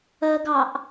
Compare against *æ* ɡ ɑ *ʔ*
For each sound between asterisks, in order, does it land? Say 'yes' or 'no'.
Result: no, yes

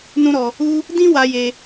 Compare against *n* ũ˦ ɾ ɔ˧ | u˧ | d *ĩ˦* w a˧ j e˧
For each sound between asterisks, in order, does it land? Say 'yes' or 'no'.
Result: yes, yes

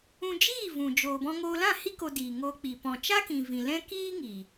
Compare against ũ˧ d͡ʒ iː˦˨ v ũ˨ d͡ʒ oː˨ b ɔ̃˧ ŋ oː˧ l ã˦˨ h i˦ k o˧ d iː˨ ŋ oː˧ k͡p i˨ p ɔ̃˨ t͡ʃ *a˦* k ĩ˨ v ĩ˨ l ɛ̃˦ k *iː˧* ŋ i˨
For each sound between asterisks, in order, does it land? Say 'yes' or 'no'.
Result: yes, no

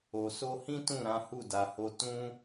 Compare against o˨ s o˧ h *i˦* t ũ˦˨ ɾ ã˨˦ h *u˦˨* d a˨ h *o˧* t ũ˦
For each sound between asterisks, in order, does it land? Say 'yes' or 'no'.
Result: no, yes, yes

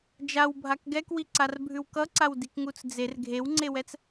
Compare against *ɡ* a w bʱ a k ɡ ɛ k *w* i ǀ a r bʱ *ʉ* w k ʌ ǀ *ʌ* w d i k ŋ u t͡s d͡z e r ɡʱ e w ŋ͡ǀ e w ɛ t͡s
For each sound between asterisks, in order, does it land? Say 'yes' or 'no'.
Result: no, yes, yes, no

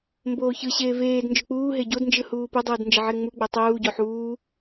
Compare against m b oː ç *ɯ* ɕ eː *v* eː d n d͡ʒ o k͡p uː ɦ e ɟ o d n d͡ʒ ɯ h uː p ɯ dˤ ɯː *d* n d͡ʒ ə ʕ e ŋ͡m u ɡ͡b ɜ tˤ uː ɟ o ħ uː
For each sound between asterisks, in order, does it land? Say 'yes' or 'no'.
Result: yes, yes, yes

